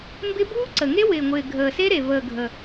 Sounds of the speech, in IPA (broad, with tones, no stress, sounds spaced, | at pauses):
m b ɪ˦˥ b uː˦˥ ǀ ə˨˩ ŋ e˦˥ w ɪː˨˩ ŋʷ ɪː˨˩ ɡʱ əː˨˩ s e˦˥ ɾ e˨˩ v əː˨˩ ɡʱ ə˨˩